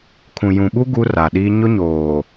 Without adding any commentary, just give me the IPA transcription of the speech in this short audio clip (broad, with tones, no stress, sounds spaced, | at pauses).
kʰ ũ˨ j ũ˨ ɓ u˦ ɡ u˦ r a˨ ɗ iː˦ ɲ ʊ˦ ɲ oː˨